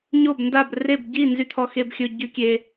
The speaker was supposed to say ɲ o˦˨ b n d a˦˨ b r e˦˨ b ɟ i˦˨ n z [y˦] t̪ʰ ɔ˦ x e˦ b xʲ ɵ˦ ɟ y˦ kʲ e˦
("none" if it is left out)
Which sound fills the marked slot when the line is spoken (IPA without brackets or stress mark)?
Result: y˦